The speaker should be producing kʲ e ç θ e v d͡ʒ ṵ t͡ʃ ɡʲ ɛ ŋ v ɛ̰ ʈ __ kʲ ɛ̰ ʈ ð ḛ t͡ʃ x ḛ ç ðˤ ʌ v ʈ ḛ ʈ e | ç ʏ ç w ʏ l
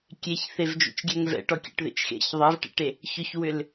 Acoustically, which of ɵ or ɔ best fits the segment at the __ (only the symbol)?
ɔ